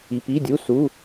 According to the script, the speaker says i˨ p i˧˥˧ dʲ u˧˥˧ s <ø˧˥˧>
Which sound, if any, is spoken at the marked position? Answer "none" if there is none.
u˧˥˧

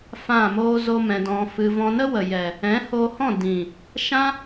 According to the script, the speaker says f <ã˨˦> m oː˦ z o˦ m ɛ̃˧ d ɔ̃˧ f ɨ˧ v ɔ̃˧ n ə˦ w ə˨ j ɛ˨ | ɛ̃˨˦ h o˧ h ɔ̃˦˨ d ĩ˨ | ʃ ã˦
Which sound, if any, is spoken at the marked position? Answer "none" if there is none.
ã˦˨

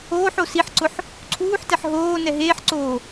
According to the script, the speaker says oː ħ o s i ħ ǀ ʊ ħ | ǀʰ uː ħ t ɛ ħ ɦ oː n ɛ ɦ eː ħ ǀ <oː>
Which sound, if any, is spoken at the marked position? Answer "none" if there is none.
oː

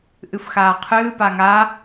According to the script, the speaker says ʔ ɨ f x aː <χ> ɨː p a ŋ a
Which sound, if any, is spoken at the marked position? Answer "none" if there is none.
qʰ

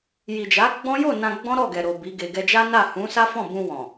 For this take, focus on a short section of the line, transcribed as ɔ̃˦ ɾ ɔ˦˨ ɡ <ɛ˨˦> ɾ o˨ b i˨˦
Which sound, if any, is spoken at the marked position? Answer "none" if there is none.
ɛ˨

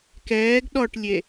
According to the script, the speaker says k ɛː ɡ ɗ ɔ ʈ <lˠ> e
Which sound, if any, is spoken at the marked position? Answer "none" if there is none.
lʲ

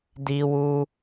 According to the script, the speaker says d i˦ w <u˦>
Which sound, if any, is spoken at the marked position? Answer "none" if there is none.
u˦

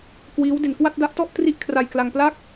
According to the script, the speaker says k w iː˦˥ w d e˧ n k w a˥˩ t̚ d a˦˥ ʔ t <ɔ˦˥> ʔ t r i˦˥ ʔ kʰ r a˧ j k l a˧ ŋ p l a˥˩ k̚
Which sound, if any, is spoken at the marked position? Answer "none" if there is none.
ɔ˥˩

